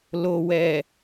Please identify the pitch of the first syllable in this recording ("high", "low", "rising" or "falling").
low